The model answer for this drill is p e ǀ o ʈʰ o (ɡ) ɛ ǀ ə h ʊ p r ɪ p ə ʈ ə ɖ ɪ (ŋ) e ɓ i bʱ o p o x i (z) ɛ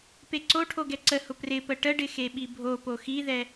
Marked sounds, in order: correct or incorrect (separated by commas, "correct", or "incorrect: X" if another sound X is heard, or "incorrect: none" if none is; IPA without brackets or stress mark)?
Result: correct, incorrect: x, incorrect: ð